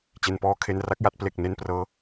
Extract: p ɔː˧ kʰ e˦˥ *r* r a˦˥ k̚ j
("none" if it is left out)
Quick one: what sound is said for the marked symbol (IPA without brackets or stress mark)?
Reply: n